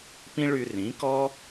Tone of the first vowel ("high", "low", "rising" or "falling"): high